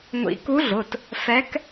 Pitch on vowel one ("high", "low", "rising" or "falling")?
rising